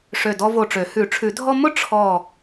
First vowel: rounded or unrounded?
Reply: rounded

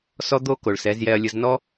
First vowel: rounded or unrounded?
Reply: rounded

